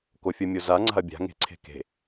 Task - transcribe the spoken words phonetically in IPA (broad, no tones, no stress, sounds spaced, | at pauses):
k o fʲ o mʲ o z a ŋ͡ǀ a̤ ɐ̯ bʲ a̤ ŋ e̤ ǀʰ e̤ k e̤